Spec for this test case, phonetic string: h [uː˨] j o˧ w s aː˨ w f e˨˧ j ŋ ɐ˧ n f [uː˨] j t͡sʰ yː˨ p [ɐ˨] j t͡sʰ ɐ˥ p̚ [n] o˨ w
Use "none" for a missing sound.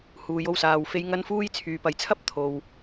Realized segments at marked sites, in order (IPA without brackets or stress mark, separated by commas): uː˨, uː˧, ɐ˨, t̪ʰ